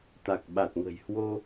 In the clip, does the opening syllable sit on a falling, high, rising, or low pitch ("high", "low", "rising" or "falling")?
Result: low